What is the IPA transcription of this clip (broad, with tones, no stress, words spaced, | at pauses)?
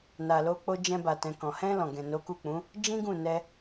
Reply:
na˨lo˧k͡po˧ d͡ʒɛ̃˧ba˨tɛ̃˨ kɔ̃˨ hɛ̃˧ lɔ̃˨ɡɛ̃˨ no˨˦ku˦˨k͡pũ˨˦ | d͡ʒĩ˦ɡũ˦˨nɛ˧